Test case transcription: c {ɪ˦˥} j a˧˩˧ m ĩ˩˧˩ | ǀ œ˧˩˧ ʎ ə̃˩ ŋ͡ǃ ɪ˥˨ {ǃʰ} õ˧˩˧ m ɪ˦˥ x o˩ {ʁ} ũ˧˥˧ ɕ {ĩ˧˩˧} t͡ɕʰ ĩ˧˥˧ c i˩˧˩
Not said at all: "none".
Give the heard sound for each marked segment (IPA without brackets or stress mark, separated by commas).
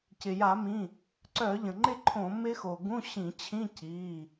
ɪ˩, ǃʰ, ɡ, ĩ˧˩˧